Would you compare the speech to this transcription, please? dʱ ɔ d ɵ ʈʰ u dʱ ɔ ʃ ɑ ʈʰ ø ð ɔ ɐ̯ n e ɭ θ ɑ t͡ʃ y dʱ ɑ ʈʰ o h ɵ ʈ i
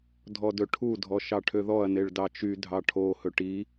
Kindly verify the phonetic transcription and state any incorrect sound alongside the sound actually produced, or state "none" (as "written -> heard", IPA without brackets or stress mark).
θ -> d